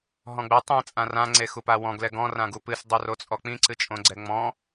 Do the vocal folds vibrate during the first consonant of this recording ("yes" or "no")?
yes